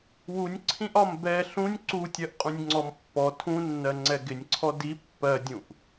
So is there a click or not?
yes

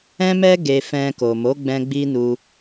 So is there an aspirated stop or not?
no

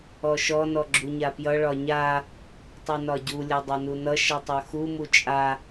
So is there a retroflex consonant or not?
yes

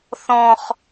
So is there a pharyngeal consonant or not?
no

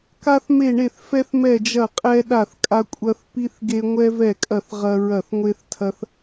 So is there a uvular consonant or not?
yes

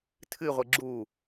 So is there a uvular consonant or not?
yes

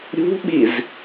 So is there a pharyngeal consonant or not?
no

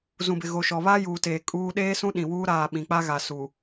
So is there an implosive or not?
yes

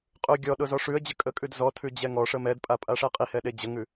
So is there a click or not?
no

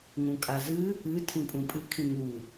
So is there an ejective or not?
yes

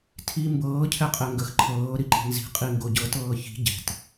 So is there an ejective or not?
yes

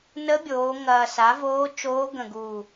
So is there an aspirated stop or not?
no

